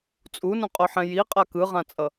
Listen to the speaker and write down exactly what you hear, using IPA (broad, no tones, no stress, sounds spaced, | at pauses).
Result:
t͡sʼ u n ũ qʼ o ħ ɛ̃ j i qʼ a k ɯ ʁ ã t͡sʼ ʌ